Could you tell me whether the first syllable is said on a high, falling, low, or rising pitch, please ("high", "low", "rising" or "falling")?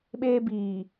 high